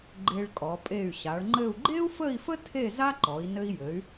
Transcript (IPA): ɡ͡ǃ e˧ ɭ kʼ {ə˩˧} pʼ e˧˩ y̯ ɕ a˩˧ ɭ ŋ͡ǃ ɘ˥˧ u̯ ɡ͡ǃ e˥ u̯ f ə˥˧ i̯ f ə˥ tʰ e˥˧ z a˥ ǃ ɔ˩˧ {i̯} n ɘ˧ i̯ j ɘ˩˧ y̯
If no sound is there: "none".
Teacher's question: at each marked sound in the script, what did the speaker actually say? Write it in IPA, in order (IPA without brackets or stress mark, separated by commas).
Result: ɔ˩˧, i̯